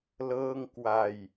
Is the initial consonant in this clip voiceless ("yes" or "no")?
no